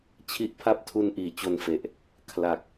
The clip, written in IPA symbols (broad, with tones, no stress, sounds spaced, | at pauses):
t͡ɕʰ i˦˥ ʔ pʰ a˥˩ p̚ tʰ u˧ n ʔ iː˩˦ t͡ɕ o˧ n f e˨˩ ʔ | kʰ l a˨˩ k̚